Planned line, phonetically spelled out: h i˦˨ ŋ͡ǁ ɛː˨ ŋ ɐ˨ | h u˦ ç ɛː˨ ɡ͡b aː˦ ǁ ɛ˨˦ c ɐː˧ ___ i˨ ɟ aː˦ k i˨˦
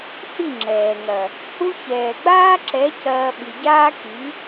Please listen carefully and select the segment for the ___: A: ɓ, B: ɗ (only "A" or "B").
A